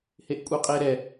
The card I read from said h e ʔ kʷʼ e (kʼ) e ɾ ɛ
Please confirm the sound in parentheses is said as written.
no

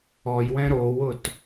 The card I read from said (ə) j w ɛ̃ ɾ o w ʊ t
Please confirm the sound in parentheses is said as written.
no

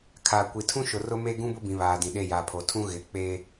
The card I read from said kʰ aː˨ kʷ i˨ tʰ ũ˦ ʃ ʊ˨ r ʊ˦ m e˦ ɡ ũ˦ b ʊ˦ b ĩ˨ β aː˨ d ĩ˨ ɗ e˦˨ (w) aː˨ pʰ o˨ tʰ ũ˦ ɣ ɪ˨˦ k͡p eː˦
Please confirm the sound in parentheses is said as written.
no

